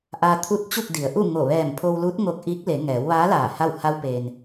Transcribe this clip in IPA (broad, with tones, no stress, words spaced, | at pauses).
ʔaː˧ t̪ʰu˧˥t̚ t͡ɕu˥˨k̚di˩˧ə̯ ʔu˥˨ŋo˧˩ ʋɛː˧˩mpʰo˧wlu˧˥t̚ ŋo˧k̚ ʔiː˧˥k̚le˩˧ ŋɛː˩˧wʋaː˧˥ laː˧˩ha˥˨w ha˧wpeː˩n